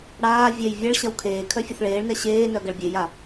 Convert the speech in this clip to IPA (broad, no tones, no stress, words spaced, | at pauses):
ɽaː vʲɛj vʲɐɭɕɐw kʰeː kʰœfʲʊθɭeːɭnɛ ɕeːnœ ɡɐɭbʲeja